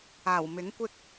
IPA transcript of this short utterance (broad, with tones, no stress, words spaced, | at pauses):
aː˨˩w mɪ˨˥ŋkʷɪ˥k̚